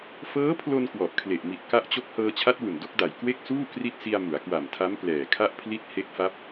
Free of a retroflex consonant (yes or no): yes